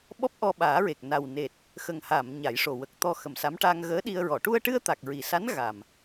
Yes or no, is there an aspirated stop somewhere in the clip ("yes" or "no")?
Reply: no